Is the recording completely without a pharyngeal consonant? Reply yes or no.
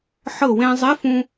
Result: no